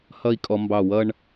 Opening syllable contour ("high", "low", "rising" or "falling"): falling